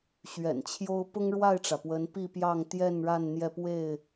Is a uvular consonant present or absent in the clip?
absent